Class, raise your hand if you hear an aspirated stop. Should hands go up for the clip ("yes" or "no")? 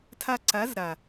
yes